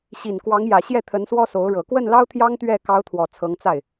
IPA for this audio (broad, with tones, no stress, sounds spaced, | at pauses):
ɕ i˨˩ n k w ɑ˧˥ ŋ j ä˨˩ ɕ j ɛ˥˩ t̪ʰ ə˧˥ n s w ɔ˥ s o˧˥ ʊ̯ ɻ ɤ˨˩ k w ə˥˩ n l ɑ˥ ʊ̯ t̪ʰ j ɑ˥ ŋ t̪ ɥ ɛ˥˩ k ɑ˧˥ ʊ̯ t̪ʰ w ɔ˨˩ t͡sʰ ɤ˧˥ ŋ t͡s a˥˩ ɪ̯